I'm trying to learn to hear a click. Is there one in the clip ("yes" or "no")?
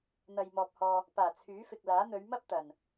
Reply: no